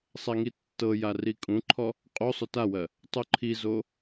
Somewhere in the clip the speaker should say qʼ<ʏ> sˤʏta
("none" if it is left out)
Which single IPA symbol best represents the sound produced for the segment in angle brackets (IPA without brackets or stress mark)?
u